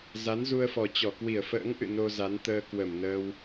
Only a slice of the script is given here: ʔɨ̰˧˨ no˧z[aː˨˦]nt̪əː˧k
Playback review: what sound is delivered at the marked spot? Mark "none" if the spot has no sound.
a˨˦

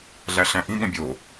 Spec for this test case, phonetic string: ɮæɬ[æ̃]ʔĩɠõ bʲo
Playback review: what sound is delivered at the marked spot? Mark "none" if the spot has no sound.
æ̃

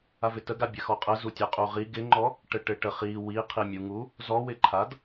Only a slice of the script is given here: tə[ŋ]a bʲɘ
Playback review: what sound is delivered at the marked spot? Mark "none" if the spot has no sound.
ɡ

